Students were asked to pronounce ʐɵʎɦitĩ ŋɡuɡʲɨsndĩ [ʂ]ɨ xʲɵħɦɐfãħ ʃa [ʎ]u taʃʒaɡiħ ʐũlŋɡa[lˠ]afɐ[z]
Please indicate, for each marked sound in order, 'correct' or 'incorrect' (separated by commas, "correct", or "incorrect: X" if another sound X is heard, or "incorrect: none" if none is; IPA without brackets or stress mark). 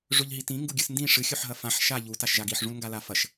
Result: correct, correct, incorrect: l, incorrect: ʃ